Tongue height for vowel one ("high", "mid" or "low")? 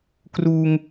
high